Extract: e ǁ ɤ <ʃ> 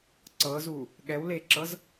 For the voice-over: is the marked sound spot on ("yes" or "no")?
no